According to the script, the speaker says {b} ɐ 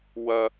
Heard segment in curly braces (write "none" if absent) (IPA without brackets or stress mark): w